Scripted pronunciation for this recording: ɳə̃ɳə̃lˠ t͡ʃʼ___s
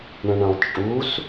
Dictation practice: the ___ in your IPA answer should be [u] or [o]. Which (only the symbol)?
u